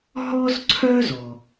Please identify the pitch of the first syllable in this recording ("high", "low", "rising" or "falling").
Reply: high